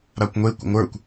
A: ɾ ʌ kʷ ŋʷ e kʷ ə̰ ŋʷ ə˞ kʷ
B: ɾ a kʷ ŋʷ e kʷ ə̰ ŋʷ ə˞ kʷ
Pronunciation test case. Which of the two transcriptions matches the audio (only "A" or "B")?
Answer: B